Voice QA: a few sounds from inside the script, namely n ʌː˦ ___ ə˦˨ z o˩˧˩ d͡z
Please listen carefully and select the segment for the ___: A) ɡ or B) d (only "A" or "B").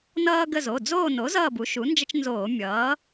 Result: A